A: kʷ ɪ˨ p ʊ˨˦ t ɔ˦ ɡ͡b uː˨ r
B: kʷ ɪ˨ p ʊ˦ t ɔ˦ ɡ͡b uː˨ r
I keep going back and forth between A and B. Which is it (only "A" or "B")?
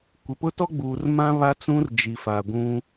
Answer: B